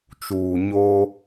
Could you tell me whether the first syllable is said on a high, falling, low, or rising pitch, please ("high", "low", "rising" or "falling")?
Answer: low